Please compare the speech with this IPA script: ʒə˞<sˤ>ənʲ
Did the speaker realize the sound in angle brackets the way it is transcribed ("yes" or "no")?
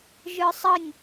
yes